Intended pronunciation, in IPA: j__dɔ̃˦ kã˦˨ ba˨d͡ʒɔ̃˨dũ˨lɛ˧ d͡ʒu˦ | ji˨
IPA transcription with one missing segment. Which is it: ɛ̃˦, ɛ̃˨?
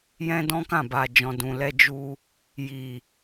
ɛ̃˦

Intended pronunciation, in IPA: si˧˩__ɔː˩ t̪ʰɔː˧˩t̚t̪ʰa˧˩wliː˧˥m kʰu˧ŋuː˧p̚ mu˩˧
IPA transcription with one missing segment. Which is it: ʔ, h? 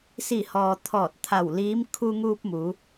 h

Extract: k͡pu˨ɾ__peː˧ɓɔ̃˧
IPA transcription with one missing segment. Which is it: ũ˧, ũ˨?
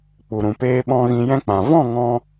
ũ˨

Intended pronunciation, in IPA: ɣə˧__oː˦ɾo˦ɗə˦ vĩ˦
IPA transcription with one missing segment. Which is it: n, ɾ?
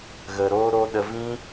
ɾ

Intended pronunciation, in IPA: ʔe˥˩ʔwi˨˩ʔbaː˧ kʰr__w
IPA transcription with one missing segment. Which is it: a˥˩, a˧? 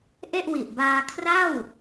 a˥˩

